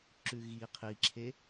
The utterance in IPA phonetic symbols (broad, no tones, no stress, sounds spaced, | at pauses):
ǁ ʉ ɣ i qʰ i ǁʰ e